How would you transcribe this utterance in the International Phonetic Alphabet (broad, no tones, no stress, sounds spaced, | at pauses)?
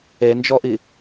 e n d͡ʒ ɔ ʔ i